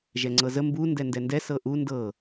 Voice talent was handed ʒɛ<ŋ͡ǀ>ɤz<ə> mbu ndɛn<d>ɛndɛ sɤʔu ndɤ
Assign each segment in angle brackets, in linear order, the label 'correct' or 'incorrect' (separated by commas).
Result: correct, correct, correct